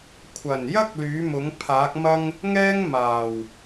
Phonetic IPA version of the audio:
kʷʰ ɐ˨˩ n j ɐ˥ k̚ l yː˨˥ m ʊ˨˥ ŋ pʰ aː˨˥ k̚ m ɐ˥ ŋ | ŋ ɛː˥ ŋ m aː˨˩ w

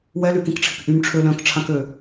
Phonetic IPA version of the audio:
w ɛ l y k ĩ k ʈ͡ʂʰ ɪ k ʔ y m ʈ͡ʂʰ ø l œ̃ k ʈ͡ʂʰ ã k ø

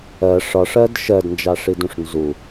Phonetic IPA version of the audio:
ɜ ʂ ɒ ʂ ɜ d ʃ ɜ d n d͡ʒ ɑ ʂ i d ũ ʂ n z u

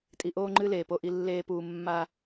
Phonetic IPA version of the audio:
tʼ i˨ ʔ oː˦ ŋ͡ǃ ɨ˦ l eː˨ p o˦ ʔ i˦ lː eː˦ p uː˨ mː a˦

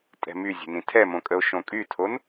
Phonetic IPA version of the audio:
tʼ ɛ̤ m y zʲ ə̤ n ĩ tʰ ɛ m õ kʼ ə o̯ ʃ õ kʼ y tʰ o n

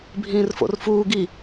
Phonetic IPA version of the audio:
bʱ ĩː r f o̰ r f uː ɡ i

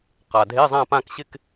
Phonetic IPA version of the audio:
q a˩ dʱ e˧˥˧ zˤ ã˥˧ p ã˥˧ k ɕ ɪ˥˧ k

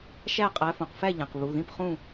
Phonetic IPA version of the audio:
ʃ æ˥˨ qʼ æ˨˦ f õ˩ q f æ˥˨ ʎ æ̃˩ q β u˩˧˩ ð ĩ˥˨ p χ ũ˥˨

